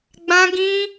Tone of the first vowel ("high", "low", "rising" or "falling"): high